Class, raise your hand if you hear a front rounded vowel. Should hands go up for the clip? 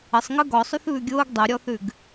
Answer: no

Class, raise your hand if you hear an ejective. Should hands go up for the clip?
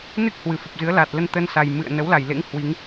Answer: no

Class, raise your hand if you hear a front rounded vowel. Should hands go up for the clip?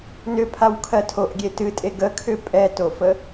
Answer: yes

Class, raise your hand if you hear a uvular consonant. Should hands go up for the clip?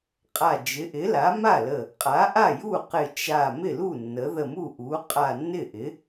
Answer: yes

